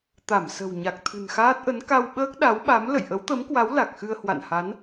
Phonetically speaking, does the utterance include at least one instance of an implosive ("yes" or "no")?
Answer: yes